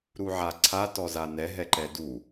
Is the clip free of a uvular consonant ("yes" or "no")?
yes